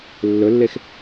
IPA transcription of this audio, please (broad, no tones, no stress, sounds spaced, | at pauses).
lː ɵ lː e x